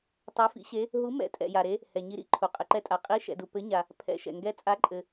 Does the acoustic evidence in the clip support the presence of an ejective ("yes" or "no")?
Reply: yes